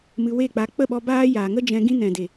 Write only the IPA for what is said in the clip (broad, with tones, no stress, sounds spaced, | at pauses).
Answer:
m ɨ˧ w e˦˨ k͡p a˧ k͡p ə˦˨ ɓ ɔ˧ b aː˦ j aː˨ ŋ ə˦ d͡ʒ ɛ̃˧ ɡ ĩ˦ n ɛ̃˨ d e˨